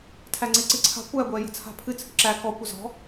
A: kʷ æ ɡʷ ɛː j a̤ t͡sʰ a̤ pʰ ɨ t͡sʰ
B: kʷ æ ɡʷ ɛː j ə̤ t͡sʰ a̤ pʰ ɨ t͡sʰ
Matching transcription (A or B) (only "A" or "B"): B